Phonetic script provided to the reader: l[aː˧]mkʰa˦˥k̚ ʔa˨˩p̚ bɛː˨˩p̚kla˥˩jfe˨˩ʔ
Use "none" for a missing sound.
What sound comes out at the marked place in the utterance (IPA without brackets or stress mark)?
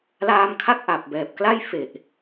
aː˧